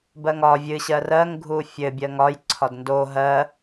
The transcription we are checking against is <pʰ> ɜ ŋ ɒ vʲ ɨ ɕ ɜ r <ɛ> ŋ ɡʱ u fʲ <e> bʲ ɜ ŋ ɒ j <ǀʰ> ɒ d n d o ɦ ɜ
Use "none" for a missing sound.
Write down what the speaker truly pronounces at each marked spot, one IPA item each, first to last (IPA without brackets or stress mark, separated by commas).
b, ɜ, ɘ, ǀʰ